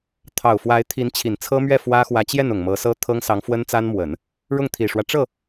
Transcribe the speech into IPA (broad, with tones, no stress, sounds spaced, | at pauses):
t̪ʰ ɑ˨˩ ʊ̯ f w a˧˥ ɪ̯ t̪ʰ i˧˥ n t͡ɕʰ i˨˩ n t͡sʰ ɤ˥ m ɥ ɛ˥˩ f w ä˥ x w ä˧˥ t͡ɕ j ɛ˥˩ n ʊ˨˩ ŋ m ɤ˧˥ s ɤ˥ t̪ʰ ɤ˥ ŋ s ɑ˧˥ ŋ f w ə˥ n t͡s a˥ n m w ə˨˩˦ n | ɻ ʊ˥˩ ŋ t̪ʰ i˨˩ ʂ w ä˦ ʈ͡ʂ ɤ˥˩